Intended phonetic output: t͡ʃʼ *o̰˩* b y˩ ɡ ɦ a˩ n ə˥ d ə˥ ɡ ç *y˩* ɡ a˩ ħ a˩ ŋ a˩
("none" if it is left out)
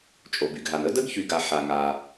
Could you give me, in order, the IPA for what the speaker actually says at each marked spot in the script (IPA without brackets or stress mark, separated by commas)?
o˩, y˩